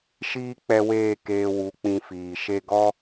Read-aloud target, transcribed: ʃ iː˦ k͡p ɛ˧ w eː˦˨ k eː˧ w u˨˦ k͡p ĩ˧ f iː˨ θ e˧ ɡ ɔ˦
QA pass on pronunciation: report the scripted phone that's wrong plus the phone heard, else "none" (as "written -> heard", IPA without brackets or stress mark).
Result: θ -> ʃ